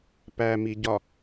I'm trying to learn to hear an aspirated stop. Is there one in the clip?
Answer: no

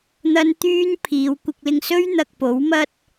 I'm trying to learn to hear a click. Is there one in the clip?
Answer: no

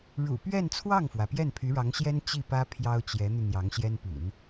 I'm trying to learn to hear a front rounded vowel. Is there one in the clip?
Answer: yes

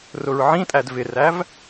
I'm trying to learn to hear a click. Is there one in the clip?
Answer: no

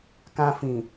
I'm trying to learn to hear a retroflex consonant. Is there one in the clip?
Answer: no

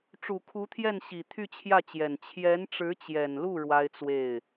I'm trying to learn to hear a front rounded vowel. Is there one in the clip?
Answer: yes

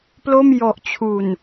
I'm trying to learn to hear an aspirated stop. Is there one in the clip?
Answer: yes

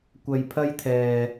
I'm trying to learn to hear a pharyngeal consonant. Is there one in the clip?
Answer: no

